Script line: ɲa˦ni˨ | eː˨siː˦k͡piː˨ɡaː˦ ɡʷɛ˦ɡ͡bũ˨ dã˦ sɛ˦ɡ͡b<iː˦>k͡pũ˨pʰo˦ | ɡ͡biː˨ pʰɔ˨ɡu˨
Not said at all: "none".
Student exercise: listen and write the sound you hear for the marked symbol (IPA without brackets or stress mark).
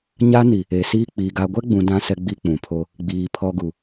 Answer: i˦